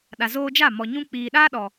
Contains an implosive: yes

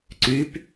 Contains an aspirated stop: no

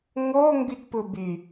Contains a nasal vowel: no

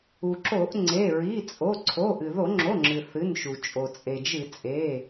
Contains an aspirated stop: yes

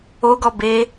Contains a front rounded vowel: no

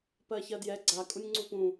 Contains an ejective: yes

